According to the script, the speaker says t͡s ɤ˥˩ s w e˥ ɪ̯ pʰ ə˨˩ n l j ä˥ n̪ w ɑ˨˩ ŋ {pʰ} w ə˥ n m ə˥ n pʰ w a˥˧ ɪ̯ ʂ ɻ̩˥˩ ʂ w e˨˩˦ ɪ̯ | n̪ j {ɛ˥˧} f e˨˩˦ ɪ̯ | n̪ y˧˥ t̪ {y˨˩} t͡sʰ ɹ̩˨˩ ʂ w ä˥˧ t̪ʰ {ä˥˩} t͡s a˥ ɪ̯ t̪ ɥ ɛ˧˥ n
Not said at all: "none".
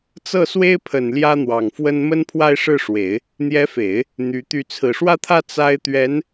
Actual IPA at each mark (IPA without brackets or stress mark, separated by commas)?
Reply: f, ɛ˧˥, y˥˩, ä˥˩